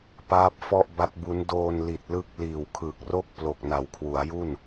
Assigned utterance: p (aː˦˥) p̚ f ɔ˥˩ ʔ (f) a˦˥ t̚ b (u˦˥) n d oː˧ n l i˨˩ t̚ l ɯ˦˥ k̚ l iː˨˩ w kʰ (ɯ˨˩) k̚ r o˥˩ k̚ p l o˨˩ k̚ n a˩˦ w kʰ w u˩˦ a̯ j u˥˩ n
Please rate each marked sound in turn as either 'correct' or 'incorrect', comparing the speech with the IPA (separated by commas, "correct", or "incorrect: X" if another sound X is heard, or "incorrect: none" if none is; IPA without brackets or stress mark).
correct, incorrect: b, correct, correct